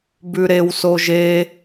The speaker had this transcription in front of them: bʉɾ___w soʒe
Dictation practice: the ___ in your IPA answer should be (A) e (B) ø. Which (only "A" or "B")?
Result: A